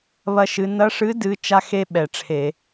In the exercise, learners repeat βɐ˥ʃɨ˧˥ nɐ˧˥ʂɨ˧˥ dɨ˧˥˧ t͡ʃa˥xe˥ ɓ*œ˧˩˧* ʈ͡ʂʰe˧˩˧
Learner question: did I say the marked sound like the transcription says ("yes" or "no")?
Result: no